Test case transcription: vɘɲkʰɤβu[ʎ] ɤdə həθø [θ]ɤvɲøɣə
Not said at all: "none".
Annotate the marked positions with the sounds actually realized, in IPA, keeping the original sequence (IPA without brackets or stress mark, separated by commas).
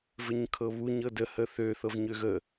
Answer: ɲ, θ